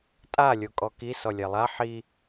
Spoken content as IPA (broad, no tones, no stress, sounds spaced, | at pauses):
tʼ a lʲ o kʼ ɔ k i s ɔ lʲ ɛ lˠ a ħ i